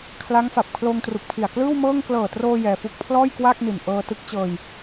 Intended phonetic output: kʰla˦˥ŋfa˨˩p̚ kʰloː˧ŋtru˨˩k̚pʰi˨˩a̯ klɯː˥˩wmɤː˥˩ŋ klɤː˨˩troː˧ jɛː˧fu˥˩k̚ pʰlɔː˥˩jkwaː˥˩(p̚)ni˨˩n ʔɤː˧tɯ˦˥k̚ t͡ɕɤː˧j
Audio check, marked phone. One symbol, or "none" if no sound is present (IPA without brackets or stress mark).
k̚